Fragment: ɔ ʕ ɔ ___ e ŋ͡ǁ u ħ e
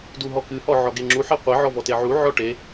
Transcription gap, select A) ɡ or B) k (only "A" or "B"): A